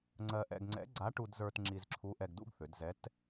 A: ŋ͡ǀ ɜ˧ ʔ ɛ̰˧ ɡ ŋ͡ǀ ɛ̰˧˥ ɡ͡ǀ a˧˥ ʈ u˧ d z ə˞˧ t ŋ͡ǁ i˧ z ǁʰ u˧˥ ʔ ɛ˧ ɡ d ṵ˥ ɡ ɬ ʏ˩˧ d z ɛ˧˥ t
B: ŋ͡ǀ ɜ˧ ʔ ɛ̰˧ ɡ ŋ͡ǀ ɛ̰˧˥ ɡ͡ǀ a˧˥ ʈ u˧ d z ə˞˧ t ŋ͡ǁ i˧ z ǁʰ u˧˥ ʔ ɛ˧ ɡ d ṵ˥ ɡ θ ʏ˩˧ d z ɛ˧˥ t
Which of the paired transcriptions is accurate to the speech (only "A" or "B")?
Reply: B